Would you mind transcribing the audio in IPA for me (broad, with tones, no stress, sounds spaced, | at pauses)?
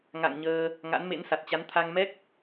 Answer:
ŋ a̰˧˨ ŋ ɲ əː˧ | ŋ a̰˧˥ n m ḛ˧˥ n s a˨˩ t̚ t͡ɕ a˨˦ n t̪ʰ a˧ ŋ m ɛ˦˥ k̚